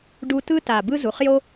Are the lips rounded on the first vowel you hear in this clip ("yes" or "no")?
yes